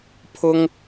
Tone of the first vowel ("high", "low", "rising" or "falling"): high